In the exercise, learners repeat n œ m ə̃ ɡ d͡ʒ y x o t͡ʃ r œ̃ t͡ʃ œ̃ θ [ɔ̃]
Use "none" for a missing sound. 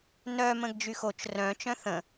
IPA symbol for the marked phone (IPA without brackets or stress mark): ə̃